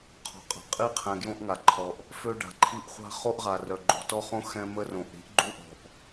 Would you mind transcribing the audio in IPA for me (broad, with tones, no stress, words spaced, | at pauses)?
qʰɔ̤˨ qʼa̤˨ qʼi˦qʰɛ̃˨ ɡjõ˦ʔŋa˨ǃʰɔ˨ʔ | fø˦ɖa̤˨ǃʰi˦ʔ χʷa̤˦ χo˦ʔʁa˨ rœ˨ɡ͡ǃo̤˨tɔ˦χõ˦ xɛ̃˦mə˦ rõ˨ʔɾi̤˦ʔ ɡ͡ǃu˦ʔɔ̤˨ʔ